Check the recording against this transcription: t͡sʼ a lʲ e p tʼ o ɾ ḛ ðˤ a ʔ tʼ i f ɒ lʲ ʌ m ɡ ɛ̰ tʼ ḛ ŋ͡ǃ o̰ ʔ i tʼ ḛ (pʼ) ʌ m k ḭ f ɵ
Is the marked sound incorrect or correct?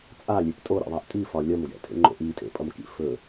correct